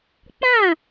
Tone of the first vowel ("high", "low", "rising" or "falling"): falling